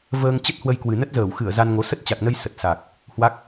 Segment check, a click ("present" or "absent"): absent